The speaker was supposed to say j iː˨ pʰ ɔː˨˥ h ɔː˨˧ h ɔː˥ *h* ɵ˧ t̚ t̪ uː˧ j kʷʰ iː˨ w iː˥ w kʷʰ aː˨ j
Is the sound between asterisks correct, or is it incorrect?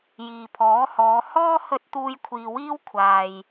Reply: correct